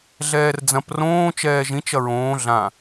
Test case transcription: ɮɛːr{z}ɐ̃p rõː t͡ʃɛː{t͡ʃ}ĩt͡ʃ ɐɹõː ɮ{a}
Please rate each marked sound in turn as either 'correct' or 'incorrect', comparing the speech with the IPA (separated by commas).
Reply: incorrect, incorrect, incorrect